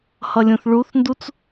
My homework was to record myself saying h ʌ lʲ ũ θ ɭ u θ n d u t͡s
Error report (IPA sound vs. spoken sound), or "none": none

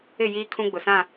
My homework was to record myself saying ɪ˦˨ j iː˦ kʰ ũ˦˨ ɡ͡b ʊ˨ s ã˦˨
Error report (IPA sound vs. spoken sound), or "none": ũ˦˨ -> ũ˦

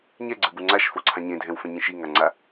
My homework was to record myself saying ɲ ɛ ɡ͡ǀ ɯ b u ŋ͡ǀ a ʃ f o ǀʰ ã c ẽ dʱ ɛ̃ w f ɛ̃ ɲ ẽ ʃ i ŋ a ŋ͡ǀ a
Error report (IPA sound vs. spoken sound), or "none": c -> ɲ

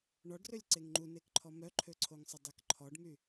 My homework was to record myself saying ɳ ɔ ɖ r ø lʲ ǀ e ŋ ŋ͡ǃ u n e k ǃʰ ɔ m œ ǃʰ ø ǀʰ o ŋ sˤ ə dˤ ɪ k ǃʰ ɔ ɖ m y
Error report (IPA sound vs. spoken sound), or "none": ɪ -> ɛ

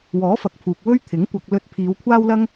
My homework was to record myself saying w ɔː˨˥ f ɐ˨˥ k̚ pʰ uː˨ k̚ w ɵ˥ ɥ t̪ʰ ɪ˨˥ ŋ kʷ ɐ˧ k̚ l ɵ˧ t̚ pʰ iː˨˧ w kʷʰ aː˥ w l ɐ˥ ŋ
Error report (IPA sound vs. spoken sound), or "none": none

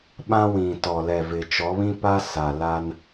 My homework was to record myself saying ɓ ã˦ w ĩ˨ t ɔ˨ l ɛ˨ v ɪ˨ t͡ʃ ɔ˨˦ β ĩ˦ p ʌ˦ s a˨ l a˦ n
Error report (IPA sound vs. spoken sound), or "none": ʌ˦ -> a˦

